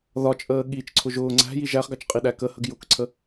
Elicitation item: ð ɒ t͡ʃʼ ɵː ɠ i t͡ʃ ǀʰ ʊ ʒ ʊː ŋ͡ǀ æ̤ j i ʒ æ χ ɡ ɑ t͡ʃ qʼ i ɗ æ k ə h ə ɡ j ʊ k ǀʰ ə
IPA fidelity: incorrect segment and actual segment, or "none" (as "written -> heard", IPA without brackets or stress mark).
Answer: ɵː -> əː